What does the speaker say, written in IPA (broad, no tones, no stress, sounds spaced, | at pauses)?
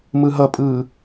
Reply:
m ɯ ɦ ʌ pʼ ɯː